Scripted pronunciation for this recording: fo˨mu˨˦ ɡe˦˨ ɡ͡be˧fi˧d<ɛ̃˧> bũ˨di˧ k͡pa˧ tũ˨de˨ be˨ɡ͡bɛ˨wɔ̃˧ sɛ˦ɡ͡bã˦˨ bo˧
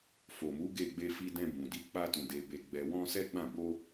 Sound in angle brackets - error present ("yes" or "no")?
no